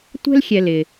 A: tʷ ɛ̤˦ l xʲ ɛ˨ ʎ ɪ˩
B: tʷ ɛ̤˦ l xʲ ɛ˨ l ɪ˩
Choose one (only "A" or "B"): B